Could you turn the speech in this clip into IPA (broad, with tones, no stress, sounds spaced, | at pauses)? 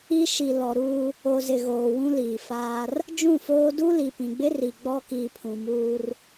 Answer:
i˦ ʃ i˨ l ɔ˨ ɾ uː˦ | o˨ z ɪ˨ ɣ oː˨ w ũ˦ l iː˨ f aː˦ r | d͡ʒ ũ˦˨ f oː˦ d u˦ l i˨ p ĩ˨ ɡ͡b ɪ˦ r i˨ ɡ͡b ɔ˦ k iː˨ pʰ ũ˨ m uː˦ r